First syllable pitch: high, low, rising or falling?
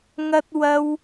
high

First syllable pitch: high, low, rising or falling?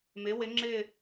rising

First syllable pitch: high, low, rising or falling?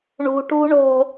low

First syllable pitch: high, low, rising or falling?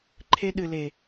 high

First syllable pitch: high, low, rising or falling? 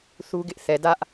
high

